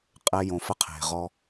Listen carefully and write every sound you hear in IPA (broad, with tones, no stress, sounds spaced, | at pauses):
qʼ ɛ˧ j õ˧ f ə˥ qʰ e̤˩ ʁ ɔ˧